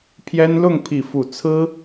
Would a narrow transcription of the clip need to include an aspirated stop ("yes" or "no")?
yes